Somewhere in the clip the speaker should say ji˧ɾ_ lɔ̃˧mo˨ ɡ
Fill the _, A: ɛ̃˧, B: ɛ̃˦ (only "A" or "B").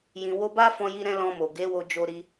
A